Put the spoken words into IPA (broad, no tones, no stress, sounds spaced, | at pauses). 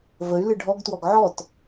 v ə y̯ l ɨ ɖʱ ɔ ɡ t w ɔ ɡ ʕ ɔ t